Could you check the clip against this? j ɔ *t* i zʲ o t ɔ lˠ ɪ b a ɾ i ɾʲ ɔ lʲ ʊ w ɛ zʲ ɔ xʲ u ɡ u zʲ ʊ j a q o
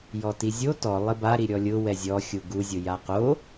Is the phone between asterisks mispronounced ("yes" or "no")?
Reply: no